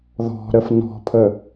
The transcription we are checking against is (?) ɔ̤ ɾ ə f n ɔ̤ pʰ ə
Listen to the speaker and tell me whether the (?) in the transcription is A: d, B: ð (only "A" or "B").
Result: B